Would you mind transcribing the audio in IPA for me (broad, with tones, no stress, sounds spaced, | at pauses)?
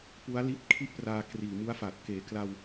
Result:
p u˦˥ a̯ l i˦˥ t̚ kʰ i˥˩ ʔ p r aː˧ k r iː˨˩ m u˦˥ a̯ f a˨˩ t̚ k eː˨˩ k l a˧ w